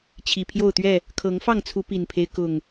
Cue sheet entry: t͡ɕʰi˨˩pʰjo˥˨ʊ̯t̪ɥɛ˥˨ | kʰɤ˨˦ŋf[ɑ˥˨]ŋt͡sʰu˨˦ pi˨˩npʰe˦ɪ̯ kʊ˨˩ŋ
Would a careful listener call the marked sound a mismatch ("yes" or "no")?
no